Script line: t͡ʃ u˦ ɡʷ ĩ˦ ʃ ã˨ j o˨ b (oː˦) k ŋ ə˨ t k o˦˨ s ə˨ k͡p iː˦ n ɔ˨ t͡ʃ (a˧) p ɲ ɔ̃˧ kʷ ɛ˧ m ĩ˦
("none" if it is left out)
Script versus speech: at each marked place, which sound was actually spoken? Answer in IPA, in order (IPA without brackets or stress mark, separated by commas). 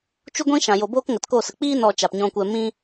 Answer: oː˦, a˨